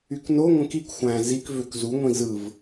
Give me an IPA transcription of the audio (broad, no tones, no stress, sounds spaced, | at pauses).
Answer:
y k n o ŋʷ ẽ k i k xʷ æ̃ z i k v ø k z u ŋʷ ĩ z ɯ v